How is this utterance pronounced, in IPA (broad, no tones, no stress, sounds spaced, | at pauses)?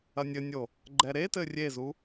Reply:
ɐ nʲ ɘ nʲ o | ɡ͡ǃ ɛ ɾ e t ɘ rʲ e z u